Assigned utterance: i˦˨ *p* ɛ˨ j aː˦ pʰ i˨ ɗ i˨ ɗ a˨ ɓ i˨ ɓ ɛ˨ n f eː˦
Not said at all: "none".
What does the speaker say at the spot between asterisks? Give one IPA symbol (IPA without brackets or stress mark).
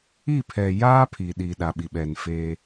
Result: pʰ